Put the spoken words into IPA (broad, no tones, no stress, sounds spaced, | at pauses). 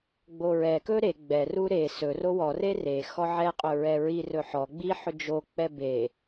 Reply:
ɡ͡b o ɹ ɛ k ɵ ɾ e ɡ͡b ɛ r u ɾ e s ɵ r o w ɔ r e r e x ɔ ʕ ɛ qʼ ɵ ɹ ɛ ɹ i r ɵ ħ ɔ ɡ͡b i ħ ɵ d͡ʒ o k͡p ɛ b e